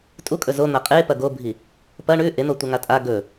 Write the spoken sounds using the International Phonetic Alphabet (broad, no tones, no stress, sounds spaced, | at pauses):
tʼ u kʼ ɵ z o n̪ a qʼ e p ɐ ɡ o bʱ i | p ɐ ɳ ʉ ʔ e n̪ o tʷ ɐ ŋ a tʼ a ɡ ɵ